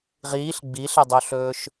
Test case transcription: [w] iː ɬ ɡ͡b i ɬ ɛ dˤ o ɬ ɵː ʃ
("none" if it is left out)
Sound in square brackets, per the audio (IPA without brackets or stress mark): ʁ